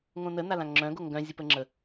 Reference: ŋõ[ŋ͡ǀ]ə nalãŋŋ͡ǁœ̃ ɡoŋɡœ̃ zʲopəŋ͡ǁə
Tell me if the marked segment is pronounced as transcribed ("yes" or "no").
no